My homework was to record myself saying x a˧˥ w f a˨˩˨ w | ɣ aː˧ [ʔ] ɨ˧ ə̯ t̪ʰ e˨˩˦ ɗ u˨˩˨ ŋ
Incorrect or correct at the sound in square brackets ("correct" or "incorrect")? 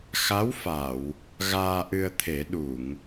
correct